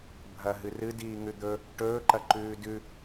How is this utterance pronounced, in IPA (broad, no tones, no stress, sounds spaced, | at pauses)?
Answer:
bʱ ɐ ɦ ɨ r ɨ d iː ŋ ʉ d̪ ɵ | ʈ ɵː ǃ ɐ ǃ ʉː d ʉ